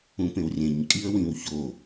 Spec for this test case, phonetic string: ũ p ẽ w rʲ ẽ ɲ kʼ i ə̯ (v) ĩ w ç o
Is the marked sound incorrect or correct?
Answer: incorrect